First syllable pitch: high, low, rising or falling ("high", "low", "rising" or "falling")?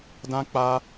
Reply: high